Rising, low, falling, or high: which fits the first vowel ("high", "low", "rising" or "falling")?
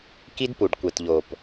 high